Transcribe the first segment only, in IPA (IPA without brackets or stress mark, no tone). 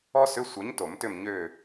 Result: ɔ